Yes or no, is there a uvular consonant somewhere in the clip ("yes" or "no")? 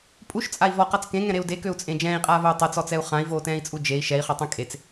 yes